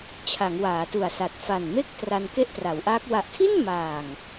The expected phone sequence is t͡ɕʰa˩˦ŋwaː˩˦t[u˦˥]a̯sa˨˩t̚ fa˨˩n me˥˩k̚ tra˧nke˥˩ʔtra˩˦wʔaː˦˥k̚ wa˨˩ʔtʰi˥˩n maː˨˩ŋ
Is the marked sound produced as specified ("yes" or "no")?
no